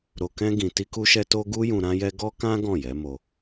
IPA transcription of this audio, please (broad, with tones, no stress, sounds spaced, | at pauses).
ɾ o˧ k ɛ̃˦ ɡ ĩ˧ t i˦ k u˦ ʃ ɛ˦ t o˦ ɡ u˦ j ũ˧ ɾ ã˦ j ɛ˦ ɡ ɔ˦ k ã˦ ɡ ɔ̃˦˨ j ɛ˨˦ m o˧